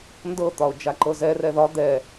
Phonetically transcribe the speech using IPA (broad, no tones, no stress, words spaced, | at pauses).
ndɤt̪ɒʊ̯ d͡ʒaǃɤzɛrɛ ðɒ d̪ɛ